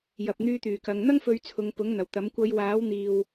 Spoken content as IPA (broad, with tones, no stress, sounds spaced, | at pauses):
j ɐ˨ p̚ n̪ yː˧ t̪ yː˨˩ k ɐ˨˧ ŋ n̪ ɐ˥ ŋ f ɵ˨˧ ɥ t͡sʰ ʊ˨˧ ŋ p ʊ˨˥ ŋ n̪ ɐ˨˩ w t̪ ɐ˨˥ m kʷ ɐ˨˧ j w aː˨˥ w n̪ iː˨ w